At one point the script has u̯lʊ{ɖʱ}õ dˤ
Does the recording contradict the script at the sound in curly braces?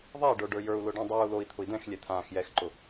yes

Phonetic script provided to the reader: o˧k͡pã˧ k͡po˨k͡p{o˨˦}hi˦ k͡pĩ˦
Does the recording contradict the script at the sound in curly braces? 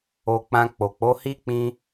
no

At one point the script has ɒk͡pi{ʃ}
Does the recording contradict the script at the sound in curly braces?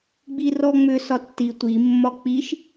no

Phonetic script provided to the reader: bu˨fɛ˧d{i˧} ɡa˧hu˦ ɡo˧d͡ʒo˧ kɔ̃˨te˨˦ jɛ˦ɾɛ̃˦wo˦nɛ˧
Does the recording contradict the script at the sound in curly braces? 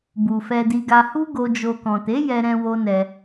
no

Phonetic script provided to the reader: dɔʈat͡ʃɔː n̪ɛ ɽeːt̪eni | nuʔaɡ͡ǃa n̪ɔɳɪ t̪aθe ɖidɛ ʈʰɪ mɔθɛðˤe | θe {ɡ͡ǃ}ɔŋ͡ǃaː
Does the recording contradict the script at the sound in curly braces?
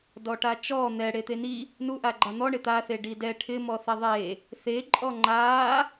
yes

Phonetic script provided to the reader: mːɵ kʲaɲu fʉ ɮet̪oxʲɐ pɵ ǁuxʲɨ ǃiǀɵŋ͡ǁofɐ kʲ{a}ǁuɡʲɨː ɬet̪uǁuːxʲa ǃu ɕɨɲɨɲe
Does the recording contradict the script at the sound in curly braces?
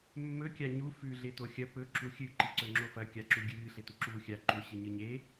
no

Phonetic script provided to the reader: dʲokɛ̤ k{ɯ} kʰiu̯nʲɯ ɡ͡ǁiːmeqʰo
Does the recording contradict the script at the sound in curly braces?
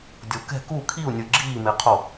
yes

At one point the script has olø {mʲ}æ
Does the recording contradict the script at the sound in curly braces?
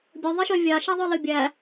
yes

